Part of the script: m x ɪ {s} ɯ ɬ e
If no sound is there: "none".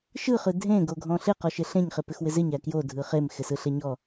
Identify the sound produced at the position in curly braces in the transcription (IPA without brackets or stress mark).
s